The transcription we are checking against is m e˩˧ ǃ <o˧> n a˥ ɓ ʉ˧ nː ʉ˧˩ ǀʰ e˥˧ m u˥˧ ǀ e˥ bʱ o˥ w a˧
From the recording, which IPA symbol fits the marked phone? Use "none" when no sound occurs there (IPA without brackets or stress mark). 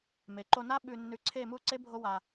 o˧